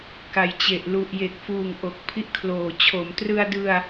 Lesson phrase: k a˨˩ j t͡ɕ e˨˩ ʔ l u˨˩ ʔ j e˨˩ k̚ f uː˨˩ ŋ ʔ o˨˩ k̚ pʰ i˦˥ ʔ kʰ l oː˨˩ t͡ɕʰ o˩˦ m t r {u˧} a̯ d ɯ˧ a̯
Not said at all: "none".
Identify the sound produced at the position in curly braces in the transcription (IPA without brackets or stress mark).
ɯ˧